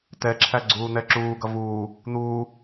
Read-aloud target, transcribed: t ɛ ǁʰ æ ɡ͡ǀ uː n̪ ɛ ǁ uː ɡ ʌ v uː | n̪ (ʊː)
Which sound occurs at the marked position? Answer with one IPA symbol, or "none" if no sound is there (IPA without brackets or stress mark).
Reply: uː